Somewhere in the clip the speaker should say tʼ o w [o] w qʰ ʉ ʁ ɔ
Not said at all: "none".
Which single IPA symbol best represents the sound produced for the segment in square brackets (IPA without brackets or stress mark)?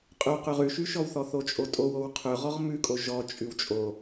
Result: o